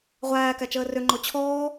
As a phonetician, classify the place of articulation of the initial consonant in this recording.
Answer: uvular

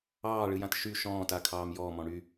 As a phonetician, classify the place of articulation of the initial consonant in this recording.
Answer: retroflex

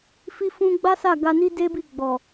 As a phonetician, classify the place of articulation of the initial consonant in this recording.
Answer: labial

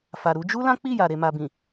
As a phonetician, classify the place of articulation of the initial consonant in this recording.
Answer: labial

